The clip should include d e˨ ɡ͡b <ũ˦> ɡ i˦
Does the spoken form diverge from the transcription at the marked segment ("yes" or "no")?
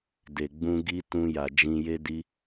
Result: yes